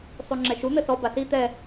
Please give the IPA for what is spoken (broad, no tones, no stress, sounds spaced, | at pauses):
sˤ u ŋ͡ǁ ɛ ʃ u n̪ ɘ s ɔ b a s i t̪ ɛ